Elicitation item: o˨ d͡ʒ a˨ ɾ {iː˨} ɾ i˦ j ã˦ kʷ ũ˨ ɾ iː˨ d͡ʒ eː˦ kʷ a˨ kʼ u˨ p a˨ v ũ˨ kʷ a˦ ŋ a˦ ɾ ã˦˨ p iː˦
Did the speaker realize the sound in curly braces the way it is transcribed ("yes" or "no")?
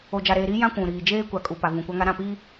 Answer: no